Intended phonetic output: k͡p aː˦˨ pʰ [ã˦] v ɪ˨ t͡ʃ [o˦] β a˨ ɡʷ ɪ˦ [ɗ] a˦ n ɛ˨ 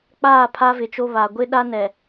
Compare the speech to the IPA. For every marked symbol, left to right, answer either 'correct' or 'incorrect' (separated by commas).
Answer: incorrect, correct, correct